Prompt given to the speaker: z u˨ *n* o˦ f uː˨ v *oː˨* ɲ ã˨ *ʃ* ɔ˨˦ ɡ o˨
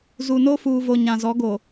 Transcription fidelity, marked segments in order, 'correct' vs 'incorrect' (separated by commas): correct, incorrect, incorrect